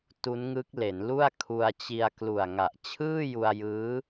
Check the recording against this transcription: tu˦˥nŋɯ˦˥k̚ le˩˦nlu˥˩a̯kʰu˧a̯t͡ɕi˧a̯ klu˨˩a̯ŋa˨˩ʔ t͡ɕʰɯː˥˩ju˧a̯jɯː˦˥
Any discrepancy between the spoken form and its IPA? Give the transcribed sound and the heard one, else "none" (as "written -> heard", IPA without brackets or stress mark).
none